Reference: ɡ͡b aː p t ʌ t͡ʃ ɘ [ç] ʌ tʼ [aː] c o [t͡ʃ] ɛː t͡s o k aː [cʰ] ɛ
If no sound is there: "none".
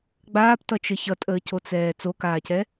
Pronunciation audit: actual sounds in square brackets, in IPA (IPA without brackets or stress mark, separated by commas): ç, əː, t͡s, c